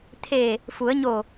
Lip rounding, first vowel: unrounded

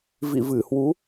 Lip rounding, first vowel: unrounded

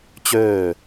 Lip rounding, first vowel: rounded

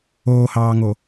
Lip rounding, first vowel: rounded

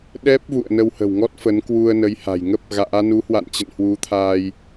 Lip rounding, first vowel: unrounded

